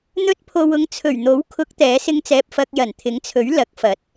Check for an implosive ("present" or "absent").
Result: absent